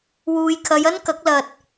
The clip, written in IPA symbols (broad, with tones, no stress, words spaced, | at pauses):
wuː˨jkʰɐ˨˧jɐ˥nkɐ˨˥k̚ lɐ˧t̚